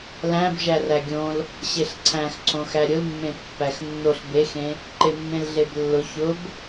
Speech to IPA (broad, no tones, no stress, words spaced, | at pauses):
læ̃b ʒæræɡʲõl | ɕeɬǀʰæ̃xǀʰõxæ ɾʲʊlmːẽ pːæxnːoɬ bexẽ | ǃemːẽlɮeblːʊ çʊb